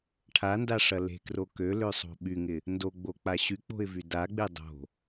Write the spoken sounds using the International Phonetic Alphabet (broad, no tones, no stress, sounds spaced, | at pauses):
ʈʰ a n d a ʂ ɐ l e̤ k r o k ø l ø sˤ o̤ ɓ y ŋ ɪ | n d o ɡ͡b o k͡p a ɕ y k͡p o̤ ɪ̯ v y d a ɡ͡b e dˤ o̤